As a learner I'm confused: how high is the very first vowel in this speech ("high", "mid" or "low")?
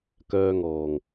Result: mid